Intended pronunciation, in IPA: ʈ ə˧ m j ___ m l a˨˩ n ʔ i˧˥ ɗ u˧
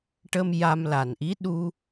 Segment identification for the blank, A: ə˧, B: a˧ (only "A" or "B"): B